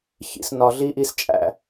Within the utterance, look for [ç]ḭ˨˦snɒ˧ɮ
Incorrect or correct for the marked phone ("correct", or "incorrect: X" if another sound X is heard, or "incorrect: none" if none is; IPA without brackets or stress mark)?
correct